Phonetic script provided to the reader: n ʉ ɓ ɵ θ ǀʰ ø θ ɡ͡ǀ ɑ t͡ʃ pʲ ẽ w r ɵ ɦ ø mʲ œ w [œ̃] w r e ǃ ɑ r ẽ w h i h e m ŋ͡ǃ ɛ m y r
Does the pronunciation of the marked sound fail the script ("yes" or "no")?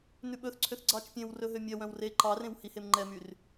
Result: no